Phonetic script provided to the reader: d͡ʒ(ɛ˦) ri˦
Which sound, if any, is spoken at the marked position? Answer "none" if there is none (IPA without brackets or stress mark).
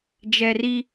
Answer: ɛ˦